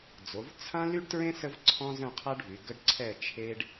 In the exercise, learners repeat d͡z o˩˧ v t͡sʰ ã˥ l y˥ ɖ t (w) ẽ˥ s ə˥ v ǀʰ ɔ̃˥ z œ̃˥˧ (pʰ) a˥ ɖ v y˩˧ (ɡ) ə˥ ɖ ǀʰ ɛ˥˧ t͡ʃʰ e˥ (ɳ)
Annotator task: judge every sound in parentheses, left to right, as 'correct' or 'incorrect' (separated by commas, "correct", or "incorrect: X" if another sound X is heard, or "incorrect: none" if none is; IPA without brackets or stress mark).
incorrect: ɹ, incorrect: qʰ, correct, incorrect: ɖ